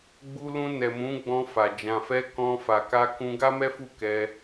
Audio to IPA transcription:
ɡ͡bu˧lũ˧nɛ˨mũ˨˦ ɡ͡bɔ̃˧fa˨ d͡ʒã˨fɛ˧ kɔ̃˧ fa˨ka˧kũ˧ ɡa˦mɛ˦fu˦˨kɛ˧

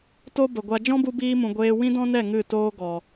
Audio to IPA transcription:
to˦bə˨ɡʷa˧ d͡ʒɔ̃˦bu˧biː˧mũ˨ ɡʷeː˧ wĩ˦dɔ̃˦nɛ˦˨ ŋɨ˦˨toː˦ɡɔ˨

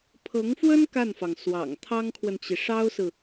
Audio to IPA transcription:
pʰɤ˧˥ŋfwə˥n ka˥˩nfɑ˩ŋ swɑ̰˨˩ŋ t̪ʰɑ˥ŋkʰwə˨nt͡ɕi˩ ʂɑ˥ʊ̯sɹ̩˨

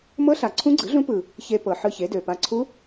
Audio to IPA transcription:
mɤ˦˥ɬa˨˩ ǀʰũ˦˥ɡ͡ǀɯ˩˥ɮũ˦˥pɯ˨˩ | çe˧pɤ˨˩ ħɯ˧çe˩˥dø˨˩pa˧ ǀʰu˦˥

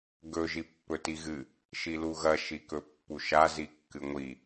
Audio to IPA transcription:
ɡɵ ʒipːɵtiɣɨ | ʃiluɣɐ ʃikɵpːuʃa zikːɨŋʷi

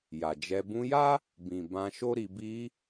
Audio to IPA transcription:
ja˨d͡ʒɛ˧ bũ˧ja˦ | bĩ˨ bã˧ʃo˦ɾi˧ bi˧

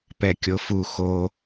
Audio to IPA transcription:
pɛkʲofu xo

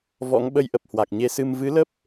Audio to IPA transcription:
vɔ̰˧˥ŋ ɓə˧jʔə˨˩p̚ hwa˨˩k̚ɲe˧ sɨ˧m vɨ˨˦lə˦˥p̚

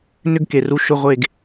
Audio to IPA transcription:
nʏ˥ɡ ke˨ru˧˥ ʃʊ˧˥˧ʁʷe˦˨ɡ

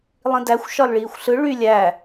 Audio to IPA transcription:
lˠĩdæxʷ ʃɒlɭiːxʷɬɯ ɭy lʲæ

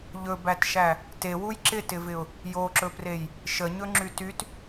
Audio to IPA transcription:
ʎɵbætʃæ | tewuj ǁɪtɪvɪʊ̯ | joǁɵprej | ʃəɲɵŋ͡ǁy tyt

